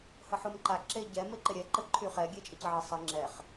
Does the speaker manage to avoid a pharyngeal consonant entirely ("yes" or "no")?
no